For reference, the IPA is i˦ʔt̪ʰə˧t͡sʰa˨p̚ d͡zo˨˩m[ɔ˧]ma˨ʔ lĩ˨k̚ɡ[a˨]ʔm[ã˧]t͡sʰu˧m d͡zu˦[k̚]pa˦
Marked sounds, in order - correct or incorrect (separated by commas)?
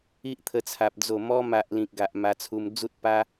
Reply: correct, correct, incorrect, incorrect